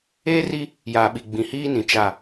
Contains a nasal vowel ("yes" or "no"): yes